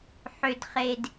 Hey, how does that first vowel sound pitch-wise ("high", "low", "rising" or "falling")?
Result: low